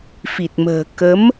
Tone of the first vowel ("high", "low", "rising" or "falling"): low